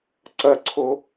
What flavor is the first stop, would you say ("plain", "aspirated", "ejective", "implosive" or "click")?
click